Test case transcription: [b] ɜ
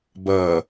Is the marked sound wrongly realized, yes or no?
no